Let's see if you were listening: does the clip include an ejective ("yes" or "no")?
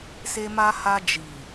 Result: no